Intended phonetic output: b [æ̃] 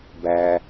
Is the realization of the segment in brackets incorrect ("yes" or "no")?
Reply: yes